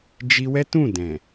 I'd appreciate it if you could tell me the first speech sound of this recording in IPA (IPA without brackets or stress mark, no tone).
d͡ʒ